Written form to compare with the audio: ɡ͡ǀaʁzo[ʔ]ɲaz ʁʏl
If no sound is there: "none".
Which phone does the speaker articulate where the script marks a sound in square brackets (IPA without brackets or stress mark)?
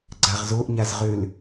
ʔ